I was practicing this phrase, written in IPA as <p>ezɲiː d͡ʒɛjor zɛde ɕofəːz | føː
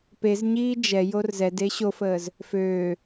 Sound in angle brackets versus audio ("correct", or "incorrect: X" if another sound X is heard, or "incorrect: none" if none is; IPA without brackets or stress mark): correct